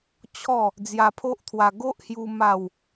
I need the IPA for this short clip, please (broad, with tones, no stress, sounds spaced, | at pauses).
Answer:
t͡ɕʰ ɔ˥˧ | d͡z j a˧ pʰ o˦ ʔ t̪ʰ w a˧ ɡ o˦ ʔ h j u˧ m a˥˧ w